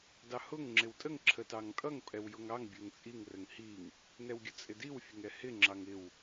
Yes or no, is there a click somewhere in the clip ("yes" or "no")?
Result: yes